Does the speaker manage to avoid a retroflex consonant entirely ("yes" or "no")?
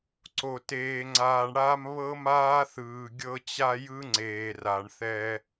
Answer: no